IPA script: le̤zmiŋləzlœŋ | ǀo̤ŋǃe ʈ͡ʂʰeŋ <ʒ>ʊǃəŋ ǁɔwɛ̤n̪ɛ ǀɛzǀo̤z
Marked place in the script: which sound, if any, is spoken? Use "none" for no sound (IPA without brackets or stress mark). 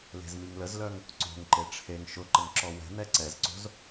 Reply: ʃ